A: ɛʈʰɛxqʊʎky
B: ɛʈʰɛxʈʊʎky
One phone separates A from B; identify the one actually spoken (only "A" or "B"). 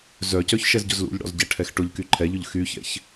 B